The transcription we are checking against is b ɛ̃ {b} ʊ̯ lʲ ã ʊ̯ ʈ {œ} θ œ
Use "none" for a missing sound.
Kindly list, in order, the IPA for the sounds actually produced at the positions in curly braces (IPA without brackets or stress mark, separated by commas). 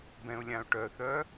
none, œ